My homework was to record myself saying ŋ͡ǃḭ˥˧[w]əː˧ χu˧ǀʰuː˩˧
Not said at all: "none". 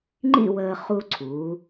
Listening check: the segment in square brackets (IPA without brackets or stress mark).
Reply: w